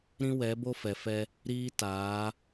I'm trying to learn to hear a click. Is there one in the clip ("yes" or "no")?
no